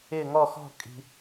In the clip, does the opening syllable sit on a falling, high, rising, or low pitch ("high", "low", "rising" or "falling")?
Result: falling